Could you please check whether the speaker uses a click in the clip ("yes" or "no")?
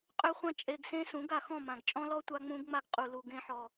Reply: no